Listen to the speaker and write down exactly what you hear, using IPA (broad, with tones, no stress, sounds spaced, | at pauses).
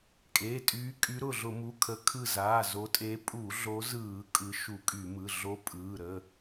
kʼ eː˩˧˩ tʼ yː˨˦ kʼ y˨˦ ɾ ʊ˧˩ ɮ ʊ˧˩˧ m u˩˧˩ kʰ ə˨˦ kʰ ɯ˧˩ z aː˩˧˩ z o˨˦ tʼ e˨˦ pʼ u˧˩˧ ɮ o˨˦ z ɯː˧˩˧ kʼ ɯ˨˦ ʃ u˧˩˧ kʼ y˧˩˧ m ɯ˩˧˩ ɮ o˨˦ pʼ ɯː˩˧˩ ɾ ə˩˧˩